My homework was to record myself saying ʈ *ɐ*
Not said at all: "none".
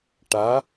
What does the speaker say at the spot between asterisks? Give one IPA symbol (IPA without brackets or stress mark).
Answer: a